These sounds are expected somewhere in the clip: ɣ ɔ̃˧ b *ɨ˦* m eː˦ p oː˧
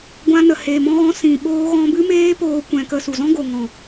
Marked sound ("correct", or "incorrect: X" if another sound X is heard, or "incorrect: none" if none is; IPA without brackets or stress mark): correct